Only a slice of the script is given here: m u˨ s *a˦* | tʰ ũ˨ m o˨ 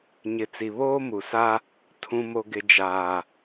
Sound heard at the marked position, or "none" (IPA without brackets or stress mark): a˦